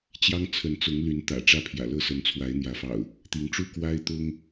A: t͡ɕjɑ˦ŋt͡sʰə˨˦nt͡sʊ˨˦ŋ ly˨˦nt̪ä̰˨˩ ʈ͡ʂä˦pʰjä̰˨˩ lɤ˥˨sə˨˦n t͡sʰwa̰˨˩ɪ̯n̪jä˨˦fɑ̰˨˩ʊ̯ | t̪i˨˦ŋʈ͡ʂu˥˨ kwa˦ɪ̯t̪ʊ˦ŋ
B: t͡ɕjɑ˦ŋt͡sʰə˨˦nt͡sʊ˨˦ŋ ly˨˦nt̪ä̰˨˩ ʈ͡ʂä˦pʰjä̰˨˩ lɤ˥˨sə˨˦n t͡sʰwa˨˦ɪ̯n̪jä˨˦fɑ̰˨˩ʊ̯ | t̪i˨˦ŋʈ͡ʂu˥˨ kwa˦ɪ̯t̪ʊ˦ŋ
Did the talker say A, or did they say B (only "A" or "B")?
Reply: B